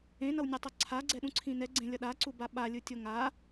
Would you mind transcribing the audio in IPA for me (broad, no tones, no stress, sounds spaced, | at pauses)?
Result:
ẽ n ʌ w nʲ ɛ tˤ ʌ ǀʰ a ɡ͡ǀ ɛ ɗ ũ ǀʰ ĩ n ɛ ɡ͡ǀ ẽ lʲ ʌ ɗ a ǀ u b a ɓ a lʲ ɯ tʲ o ŋ a